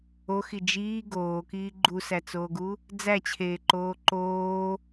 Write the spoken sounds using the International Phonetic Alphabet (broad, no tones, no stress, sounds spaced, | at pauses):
o x i d͡ʒ iː ɡ oː k iː ɡ͡ǃ u s æ t͡s oː ɡ u | d͡z æ t͡ɕʰ eː ǃ oː ǃ oː